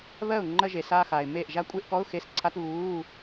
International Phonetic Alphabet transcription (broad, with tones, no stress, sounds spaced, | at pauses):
β ɜ˥˩ ʊ̯ ŋ͡ǃ ɜ˥˧ ʒ e˨ s aː˥˧ x aː˨ ɪ̯ m eː˥˩ ʔ ʒ a˥˧ kʷʼ e˥˧ ʔ k ɔ˧˥˧ ʊ̯ x e˧˥˧ s ǀʰ a˧˥˧ t β uː˧˥˧